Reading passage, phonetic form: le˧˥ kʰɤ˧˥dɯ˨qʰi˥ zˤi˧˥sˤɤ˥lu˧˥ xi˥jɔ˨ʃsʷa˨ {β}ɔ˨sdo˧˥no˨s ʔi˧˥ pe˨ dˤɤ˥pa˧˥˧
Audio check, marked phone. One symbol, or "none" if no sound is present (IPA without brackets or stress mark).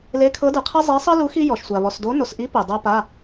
β